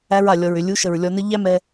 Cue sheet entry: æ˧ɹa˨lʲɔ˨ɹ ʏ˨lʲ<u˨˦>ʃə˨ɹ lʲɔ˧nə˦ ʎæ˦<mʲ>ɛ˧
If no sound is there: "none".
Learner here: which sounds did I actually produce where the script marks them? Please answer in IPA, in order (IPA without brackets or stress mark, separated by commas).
u˨˦, m